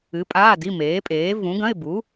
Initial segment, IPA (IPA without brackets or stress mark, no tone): ɨ